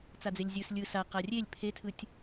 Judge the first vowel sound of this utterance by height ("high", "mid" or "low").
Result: low